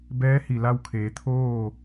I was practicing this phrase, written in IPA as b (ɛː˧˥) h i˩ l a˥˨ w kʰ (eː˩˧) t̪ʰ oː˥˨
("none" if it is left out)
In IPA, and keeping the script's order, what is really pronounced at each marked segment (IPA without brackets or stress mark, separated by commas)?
ɛː˧˥, eː˩˧